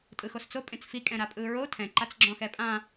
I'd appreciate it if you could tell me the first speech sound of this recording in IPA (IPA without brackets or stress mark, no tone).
tʼ